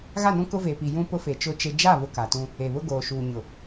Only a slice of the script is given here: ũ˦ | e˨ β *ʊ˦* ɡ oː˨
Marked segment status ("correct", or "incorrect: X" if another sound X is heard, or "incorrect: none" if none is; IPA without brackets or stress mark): correct